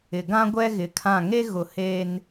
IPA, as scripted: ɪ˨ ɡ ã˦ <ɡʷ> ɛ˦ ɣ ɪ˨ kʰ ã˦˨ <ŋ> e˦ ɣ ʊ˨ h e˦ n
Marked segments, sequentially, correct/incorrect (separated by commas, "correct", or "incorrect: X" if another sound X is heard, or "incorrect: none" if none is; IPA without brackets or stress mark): correct, correct